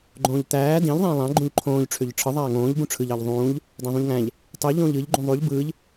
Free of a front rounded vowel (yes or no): no